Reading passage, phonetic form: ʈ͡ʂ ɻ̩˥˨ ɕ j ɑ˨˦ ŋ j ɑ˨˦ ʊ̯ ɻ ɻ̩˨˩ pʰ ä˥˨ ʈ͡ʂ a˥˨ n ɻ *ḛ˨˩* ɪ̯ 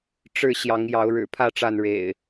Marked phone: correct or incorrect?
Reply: correct